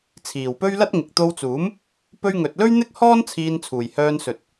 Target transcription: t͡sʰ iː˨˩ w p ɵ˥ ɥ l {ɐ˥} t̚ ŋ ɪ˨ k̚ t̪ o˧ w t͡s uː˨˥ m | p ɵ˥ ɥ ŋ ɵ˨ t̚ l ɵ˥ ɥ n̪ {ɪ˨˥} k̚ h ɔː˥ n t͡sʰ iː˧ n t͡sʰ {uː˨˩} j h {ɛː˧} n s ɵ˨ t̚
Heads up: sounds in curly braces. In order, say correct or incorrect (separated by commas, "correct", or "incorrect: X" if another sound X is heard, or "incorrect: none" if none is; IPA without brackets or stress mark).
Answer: correct, incorrect: ɪ˥, correct, incorrect: œː˧